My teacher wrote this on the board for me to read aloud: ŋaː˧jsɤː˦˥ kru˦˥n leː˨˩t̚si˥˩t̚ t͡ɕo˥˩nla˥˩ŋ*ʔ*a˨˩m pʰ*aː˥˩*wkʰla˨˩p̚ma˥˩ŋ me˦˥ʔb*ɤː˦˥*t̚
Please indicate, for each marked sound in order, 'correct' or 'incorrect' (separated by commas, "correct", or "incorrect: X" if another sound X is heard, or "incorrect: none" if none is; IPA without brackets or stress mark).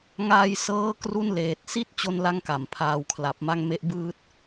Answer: incorrect: k, incorrect: aː˨˩, incorrect: ɯː˦˥